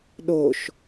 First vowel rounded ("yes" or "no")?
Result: yes